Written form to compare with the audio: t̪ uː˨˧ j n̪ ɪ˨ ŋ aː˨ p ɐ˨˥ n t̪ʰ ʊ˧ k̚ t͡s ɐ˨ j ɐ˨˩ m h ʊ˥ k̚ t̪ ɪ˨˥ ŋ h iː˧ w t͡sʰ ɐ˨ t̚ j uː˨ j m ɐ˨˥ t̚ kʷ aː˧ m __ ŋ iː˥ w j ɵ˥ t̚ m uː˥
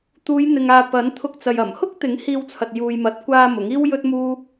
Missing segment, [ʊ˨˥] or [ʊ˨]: ʊ˨˥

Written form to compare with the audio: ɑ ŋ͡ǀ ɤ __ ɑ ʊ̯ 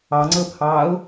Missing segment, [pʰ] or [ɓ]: pʰ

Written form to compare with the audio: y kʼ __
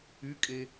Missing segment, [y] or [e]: e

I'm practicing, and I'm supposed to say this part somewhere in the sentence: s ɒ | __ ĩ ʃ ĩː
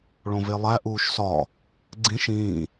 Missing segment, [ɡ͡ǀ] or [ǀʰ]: ɡ͡ǀ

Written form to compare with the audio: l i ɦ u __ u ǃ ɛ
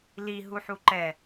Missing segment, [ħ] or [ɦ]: ħ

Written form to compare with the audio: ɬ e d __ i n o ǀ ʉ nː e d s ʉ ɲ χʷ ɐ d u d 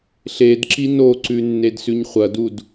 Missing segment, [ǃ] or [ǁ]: ǁ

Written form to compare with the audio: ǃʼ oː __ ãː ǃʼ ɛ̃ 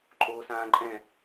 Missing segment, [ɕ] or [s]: s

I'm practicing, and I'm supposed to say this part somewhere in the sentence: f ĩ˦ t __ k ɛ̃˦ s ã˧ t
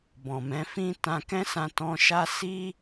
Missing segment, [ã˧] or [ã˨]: ã˧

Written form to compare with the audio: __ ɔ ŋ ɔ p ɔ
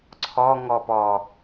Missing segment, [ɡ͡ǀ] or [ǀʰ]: ǀʰ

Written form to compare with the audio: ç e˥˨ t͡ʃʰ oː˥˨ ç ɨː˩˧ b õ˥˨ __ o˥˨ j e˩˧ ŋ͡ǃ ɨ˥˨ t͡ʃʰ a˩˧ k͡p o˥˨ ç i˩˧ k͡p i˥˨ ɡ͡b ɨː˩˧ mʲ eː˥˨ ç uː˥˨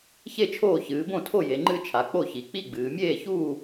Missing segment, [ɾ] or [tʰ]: tʰ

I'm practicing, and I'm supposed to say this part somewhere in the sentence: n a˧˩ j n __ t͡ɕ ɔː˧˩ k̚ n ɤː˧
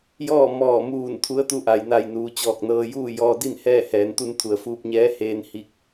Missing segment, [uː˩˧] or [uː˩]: uː˩˧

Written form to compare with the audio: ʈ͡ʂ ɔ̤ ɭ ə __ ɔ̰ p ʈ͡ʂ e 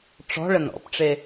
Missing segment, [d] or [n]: n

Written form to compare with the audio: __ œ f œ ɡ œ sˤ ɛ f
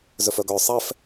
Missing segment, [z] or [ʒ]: z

